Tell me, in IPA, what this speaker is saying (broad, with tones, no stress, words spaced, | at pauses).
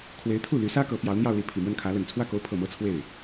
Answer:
kʰwe˧˥ɪ̯t̪ʰu˥˩ ly˧˥sä˥ kɤ˧˥pjɑ˧˥ʊ̯n̪jɑ˥˧ʊ̯li˥˩ pʰi˨˩mwə˥˩nkʰä˧˥ lə˨˩n t͡sʰwä˥˩ko˧˥ʊ̯pʰɤ˨˩ mɤ˥t͡sʰwe˥˩ɪ̯